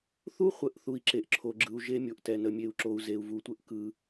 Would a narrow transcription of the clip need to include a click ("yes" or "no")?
yes